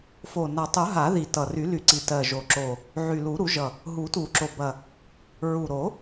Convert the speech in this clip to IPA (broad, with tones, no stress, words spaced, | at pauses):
fo˨˩ na˨˩tˤu˨˩˦ ɦa˨˩˦ði˨˩ tʌ˨˩ ry˨˩˦ly˨˩˦ǀi˨˩ tɜ˨˩ʒo˨˩ǁo˨˩ | ʕy˨˩lu˨˩˦ ɾu˨˩˦ʒʌ˨˩ | ɦu˨˩˦tu˨˩˦ǁo˨˩bɐ˨˩ | ɹu˨˩ɾo˨˩˦